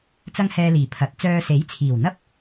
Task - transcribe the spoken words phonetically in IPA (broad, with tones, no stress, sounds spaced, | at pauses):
t͡s ɐ˥ ŋ h ɛː˧ l iː˨˩ pʰ ɐ˨˥ t̚ t͡s œː˧ s e˨˥ j t͡sʰ iː˨˩ w n̪ ɐ˥ p̚